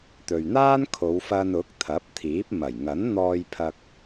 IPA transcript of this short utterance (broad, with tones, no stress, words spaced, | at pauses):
t̪ɵ˨ɥn̪aː˥n kʰo˨˧wfɐ˧nʊ˨˥k̚ t̪ʰɐ˨˥p̚t̪ʰiː˨˥p̚ mɐ˨˩j ŋɐ˨˥nn̪ɔː˧jpʰɐ˧k̚